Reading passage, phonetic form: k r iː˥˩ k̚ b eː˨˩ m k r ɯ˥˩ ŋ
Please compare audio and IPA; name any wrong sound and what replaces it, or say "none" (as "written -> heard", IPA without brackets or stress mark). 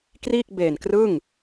m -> n